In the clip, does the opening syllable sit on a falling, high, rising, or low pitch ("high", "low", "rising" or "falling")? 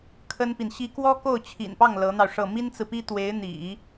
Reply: high